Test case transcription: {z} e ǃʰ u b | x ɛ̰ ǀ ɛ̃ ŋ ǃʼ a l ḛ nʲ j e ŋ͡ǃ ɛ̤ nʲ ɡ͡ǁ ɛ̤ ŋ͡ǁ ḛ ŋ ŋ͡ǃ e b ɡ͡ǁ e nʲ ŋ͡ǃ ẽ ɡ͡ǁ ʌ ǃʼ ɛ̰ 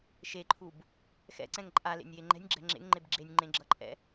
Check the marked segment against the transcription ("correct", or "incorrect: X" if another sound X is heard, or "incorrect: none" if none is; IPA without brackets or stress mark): incorrect: ʃ